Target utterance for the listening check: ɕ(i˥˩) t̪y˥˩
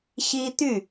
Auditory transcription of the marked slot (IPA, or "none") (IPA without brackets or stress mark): i˥